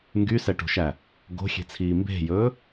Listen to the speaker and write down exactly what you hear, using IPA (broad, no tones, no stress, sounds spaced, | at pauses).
ŋ ɡ y s ɛ ʈ o̤ ʃ æ | ɡ o̤ xʲ e̤ t͡sʰ iː m b e̤ j ɵː